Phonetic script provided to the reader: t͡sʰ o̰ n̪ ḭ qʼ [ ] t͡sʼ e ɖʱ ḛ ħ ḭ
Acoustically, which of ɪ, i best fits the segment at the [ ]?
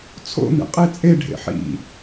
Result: i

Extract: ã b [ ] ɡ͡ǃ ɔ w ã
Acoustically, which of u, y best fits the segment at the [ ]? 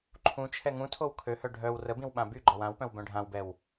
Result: y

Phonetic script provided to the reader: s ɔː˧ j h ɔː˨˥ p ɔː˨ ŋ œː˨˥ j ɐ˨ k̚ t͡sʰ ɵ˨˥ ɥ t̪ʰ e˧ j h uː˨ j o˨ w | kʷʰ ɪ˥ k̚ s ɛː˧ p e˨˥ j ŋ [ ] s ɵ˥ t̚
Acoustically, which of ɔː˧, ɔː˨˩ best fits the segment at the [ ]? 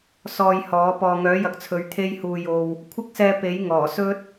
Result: ɔː˨˩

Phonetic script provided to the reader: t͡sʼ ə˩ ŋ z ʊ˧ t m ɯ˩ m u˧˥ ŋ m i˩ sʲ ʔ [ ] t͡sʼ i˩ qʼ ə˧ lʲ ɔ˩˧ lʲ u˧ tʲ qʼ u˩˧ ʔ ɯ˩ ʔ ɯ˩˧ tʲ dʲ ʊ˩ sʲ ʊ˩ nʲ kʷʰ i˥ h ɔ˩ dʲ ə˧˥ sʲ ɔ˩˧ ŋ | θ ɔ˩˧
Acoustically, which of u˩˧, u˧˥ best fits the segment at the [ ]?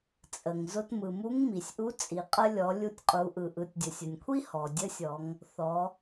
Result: u˧˥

